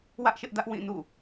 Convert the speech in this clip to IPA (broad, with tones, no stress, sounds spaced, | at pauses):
w ä˦ ʔ ʃ ɪ˦ ʔ d ä˦ ʔ w ĩ˦˨ n ṵ˦˨